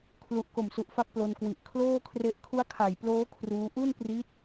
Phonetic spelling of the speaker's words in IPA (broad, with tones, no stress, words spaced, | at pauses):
kʰlu˨˩ʔ ko˨˩msu˨˩ʔfa˦˥k̚ plo˧nkwi˨˩ʔ kʰloː˥˩kʰre˦˥ʔ kʰu˦˥a̯kʰa˨˩jploː˦˥ kʰruː˦˥ ʔu˥˩n pri˦˥t̚